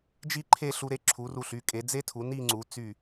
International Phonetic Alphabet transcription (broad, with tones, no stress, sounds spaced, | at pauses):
d͡ʒ i˥ ǃʰ e˥˧ ɬ u˧ ɾ e˧ ǁʰ u˩˧ r u˧˩ ɬ y˩˧ kʼ e˩˧ d͡z e˥ tʰ u˩˧ n i˥˧ ŋ͡ǀ u˩˧ t͡s y˧˩